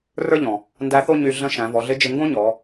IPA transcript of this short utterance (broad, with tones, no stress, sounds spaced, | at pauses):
r ə˞˥ ʎ ɔ̃˩ | n d æ˧˥ θ o˥ ɲ y˧ ɮ ə̃˧˥ ʃ æ̃˩˧ v ɔ˩˧ ɮ ɪ˧˥ d͡ʒ ɪ˧ ŋ ɡ õ˥ ɲ ɔ˩˧